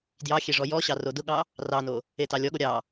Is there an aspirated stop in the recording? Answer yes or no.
no